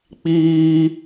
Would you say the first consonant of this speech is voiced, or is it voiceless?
voiceless